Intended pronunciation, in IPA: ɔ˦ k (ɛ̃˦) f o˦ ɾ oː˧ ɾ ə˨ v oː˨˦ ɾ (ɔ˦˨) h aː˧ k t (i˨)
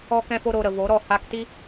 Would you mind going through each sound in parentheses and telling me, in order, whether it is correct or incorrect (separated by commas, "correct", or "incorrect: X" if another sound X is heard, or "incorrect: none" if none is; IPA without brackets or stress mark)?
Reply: correct, correct, incorrect: i˦